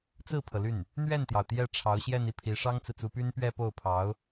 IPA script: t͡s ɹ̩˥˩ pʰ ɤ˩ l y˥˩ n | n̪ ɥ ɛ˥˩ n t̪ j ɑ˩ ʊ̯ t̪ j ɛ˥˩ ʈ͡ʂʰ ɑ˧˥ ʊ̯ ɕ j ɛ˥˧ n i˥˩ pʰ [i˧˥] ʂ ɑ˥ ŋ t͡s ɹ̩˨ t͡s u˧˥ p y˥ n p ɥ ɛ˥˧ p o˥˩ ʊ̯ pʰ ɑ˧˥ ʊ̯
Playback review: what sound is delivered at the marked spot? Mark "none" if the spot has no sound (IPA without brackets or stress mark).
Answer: i˧˥